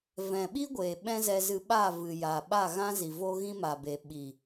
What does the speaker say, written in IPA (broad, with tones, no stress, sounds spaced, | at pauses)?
v ɛ̃˨ ɓ i˦ ɡʷ eː˨ ɓ ɛ̃˦ z ɛ˧ z ɨ˧ ɓ a˦˨ v ɨ˨ j a˨ ɓ a˦˨ ɣ ã˦ z i˨ v o˦ ɣ ĩ˦ m aː˨ b e˨ ɓ i˨